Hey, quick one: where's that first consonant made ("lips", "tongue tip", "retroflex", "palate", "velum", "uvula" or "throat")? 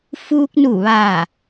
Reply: lips